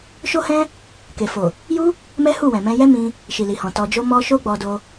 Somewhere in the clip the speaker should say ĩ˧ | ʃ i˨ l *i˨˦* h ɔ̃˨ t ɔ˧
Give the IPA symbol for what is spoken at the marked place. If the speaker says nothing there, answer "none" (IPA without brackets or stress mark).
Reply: i˨